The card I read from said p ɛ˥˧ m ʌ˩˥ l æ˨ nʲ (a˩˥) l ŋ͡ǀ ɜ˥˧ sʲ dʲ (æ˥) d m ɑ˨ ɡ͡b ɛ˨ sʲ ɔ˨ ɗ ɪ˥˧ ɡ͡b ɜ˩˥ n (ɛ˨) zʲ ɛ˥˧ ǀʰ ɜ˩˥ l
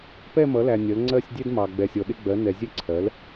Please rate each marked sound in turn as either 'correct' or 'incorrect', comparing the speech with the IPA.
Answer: incorrect, incorrect, correct

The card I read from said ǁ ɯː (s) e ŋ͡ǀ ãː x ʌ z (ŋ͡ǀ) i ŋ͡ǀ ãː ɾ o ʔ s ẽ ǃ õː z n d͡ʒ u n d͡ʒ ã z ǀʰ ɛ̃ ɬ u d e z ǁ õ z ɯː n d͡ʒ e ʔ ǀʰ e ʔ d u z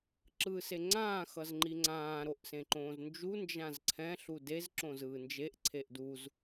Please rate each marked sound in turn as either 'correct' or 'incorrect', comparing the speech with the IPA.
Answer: correct, incorrect

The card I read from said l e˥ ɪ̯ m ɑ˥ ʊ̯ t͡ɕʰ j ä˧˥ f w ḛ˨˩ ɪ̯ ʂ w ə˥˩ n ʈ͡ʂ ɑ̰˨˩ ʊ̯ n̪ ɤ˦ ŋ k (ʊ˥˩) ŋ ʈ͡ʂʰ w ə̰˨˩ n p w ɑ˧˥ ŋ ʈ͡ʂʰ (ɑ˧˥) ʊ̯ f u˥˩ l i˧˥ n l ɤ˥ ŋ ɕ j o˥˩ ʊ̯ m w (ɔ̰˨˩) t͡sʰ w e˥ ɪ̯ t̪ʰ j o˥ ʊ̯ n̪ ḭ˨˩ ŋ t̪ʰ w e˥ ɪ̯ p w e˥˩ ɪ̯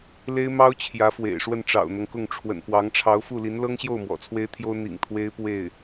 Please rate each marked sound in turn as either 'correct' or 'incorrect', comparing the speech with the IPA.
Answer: correct, correct, correct

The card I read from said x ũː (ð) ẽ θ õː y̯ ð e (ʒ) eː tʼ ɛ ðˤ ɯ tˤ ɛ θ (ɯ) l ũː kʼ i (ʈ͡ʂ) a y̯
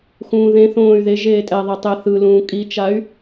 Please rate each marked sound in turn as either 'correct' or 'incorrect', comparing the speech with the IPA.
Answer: correct, correct, correct, incorrect

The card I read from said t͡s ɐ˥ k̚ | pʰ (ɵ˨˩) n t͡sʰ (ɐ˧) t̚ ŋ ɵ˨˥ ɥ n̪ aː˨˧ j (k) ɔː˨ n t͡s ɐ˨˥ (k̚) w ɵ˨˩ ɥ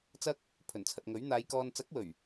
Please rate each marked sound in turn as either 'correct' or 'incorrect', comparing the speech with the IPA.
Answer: correct, incorrect, correct, correct

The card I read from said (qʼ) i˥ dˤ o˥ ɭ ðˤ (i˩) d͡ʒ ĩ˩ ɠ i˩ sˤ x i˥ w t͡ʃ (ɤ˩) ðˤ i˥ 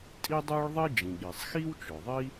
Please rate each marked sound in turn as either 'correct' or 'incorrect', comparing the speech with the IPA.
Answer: incorrect, incorrect, incorrect

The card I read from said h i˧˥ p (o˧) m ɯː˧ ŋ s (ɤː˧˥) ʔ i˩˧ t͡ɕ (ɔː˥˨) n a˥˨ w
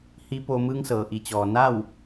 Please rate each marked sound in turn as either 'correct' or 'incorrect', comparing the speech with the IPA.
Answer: correct, incorrect, incorrect

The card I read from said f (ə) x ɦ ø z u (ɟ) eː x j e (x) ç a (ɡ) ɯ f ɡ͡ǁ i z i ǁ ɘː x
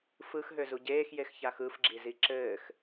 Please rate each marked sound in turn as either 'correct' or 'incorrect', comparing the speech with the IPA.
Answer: incorrect, correct, correct, incorrect

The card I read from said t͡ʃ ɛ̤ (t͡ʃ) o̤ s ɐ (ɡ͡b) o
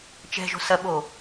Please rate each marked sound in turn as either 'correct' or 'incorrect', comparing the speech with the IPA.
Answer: incorrect, incorrect

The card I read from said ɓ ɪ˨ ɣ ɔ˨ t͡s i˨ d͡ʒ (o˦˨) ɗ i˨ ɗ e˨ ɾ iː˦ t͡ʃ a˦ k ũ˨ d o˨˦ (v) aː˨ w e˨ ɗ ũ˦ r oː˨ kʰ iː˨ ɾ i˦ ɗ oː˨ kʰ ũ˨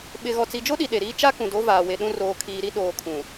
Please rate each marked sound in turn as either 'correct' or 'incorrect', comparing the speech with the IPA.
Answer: incorrect, correct

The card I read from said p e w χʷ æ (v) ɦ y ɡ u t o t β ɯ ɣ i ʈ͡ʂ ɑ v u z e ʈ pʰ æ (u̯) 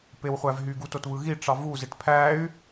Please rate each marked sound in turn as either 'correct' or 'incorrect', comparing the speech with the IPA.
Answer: correct, incorrect

